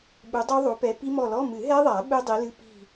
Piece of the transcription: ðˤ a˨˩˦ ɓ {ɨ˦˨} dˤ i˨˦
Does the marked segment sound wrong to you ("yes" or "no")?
yes